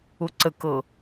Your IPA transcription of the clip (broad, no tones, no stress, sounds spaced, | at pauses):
ʊ ǀ ə k ɤ